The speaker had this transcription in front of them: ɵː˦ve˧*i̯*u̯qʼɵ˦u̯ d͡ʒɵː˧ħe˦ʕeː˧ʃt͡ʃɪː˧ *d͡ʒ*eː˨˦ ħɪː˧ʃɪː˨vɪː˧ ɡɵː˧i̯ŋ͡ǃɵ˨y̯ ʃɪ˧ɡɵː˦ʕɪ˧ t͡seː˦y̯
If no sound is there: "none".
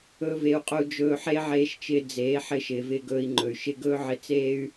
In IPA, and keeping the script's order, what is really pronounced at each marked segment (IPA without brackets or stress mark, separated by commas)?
none, d͡z